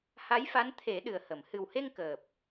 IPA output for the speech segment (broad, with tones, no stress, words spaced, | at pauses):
ha˧˥jfa˧˥n t̪ʰe˨˩˦ ɗɨ˨˩ə̯hə˨˩˨m hɨ˨˩whe˧ŋ kəː˨˩p̚